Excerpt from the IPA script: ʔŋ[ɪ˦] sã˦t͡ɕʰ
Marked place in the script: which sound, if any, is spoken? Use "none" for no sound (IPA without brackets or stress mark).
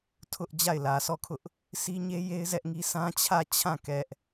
i˦